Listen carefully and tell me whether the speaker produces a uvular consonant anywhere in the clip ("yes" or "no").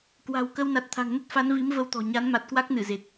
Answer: no